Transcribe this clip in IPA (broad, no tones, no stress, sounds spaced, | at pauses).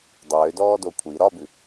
dˤ øː d ɔː d o kʷʰ i ɾ ɒ b ʉ